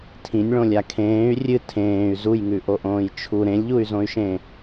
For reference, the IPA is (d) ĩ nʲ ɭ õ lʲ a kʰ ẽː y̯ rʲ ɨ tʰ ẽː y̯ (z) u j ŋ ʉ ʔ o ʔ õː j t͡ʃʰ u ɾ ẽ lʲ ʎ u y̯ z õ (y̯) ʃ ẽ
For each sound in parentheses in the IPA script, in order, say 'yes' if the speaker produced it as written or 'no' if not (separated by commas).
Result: no, yes, yes